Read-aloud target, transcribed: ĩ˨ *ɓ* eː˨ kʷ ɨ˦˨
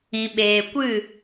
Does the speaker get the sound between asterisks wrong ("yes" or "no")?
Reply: no